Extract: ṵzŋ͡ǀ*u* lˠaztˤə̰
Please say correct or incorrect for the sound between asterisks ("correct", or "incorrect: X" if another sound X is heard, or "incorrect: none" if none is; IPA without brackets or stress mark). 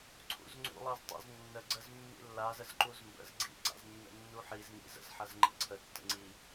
incorrect: ṵ